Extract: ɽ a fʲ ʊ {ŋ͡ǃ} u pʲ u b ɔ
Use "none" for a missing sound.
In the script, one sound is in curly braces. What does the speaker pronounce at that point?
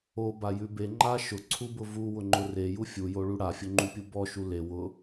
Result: ŋ͡ǃ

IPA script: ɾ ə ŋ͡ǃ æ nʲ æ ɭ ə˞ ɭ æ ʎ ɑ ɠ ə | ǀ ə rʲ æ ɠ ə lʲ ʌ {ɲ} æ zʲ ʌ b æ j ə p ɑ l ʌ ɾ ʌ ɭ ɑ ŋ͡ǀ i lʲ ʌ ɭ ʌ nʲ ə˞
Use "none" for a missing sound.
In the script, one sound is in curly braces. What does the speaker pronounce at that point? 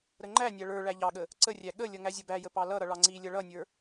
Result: ŋ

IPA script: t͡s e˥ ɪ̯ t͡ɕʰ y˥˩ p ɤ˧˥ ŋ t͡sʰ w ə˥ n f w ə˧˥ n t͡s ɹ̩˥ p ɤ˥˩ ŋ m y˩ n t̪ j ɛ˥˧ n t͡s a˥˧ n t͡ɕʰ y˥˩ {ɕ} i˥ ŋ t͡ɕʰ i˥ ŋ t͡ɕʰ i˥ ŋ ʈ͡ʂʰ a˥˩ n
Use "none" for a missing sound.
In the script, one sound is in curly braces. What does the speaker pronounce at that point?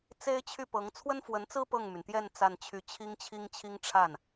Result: t͡ɕʰ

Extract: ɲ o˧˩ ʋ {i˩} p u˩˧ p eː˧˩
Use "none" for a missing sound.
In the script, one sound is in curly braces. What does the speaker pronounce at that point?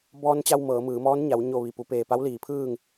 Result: i˩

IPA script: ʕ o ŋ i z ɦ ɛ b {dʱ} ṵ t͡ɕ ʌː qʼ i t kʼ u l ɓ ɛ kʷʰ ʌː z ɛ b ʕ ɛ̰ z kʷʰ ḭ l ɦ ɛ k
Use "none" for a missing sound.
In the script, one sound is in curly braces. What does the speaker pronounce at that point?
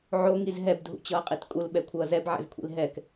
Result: dʱ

